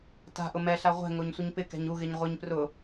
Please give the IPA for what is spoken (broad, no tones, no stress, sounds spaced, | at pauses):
t a̤ ʔ ʊ m ɛ ɬ a ʁʷ ɛ̤ ŋ o ɲ sʷ ɪ ɲ p ɪ k ɛ̤ ɲ u ɣ ɪ ɲ ʁʷ ɪ ɲ p r ʊ